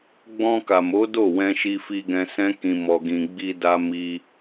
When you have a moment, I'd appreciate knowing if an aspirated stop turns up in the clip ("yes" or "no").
no